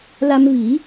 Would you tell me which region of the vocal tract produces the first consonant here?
tongue tip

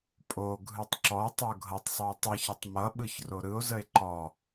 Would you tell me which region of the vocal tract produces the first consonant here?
lips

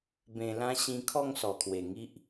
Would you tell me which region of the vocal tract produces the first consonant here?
lips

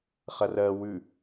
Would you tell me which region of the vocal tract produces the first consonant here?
uvula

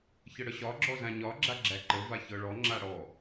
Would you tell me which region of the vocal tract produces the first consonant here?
palate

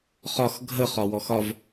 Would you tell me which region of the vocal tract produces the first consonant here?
uvula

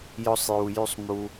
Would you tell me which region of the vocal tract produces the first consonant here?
palate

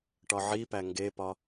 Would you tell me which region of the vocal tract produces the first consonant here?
retroflex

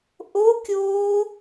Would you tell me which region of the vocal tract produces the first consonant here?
throat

